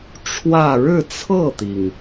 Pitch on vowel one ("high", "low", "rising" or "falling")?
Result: falling